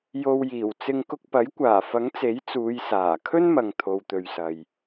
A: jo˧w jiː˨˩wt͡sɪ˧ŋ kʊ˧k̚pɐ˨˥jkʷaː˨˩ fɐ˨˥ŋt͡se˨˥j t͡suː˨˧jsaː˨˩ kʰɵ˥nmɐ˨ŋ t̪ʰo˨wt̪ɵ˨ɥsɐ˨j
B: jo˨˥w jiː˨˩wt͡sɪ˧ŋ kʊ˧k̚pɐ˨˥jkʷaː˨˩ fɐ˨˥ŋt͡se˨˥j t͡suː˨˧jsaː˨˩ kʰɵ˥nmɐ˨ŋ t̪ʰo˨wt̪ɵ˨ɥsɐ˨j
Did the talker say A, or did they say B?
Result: A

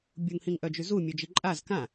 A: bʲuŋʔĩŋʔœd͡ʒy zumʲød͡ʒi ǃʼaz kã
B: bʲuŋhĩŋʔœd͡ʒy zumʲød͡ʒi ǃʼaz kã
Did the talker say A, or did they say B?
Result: B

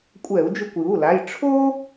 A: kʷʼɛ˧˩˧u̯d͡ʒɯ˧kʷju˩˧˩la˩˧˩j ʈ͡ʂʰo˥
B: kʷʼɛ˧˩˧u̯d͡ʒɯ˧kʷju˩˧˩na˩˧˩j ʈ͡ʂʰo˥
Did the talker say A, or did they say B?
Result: A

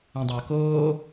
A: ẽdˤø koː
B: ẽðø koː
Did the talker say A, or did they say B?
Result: A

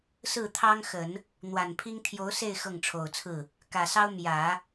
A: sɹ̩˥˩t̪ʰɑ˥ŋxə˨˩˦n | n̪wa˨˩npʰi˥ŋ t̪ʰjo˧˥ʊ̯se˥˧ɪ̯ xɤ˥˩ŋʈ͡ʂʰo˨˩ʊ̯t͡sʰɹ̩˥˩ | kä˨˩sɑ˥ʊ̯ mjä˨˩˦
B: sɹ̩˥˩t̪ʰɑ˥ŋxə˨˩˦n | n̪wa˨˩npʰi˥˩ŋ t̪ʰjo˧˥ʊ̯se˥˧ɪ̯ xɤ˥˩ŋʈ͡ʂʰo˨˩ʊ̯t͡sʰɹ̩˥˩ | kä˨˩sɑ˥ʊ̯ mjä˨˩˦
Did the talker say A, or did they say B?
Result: A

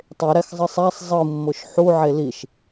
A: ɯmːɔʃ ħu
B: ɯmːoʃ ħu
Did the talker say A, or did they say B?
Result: B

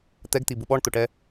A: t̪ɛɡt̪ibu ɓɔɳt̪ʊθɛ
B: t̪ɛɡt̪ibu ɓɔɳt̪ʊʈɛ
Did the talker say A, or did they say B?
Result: B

